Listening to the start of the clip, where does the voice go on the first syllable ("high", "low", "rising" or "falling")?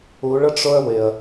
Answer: rising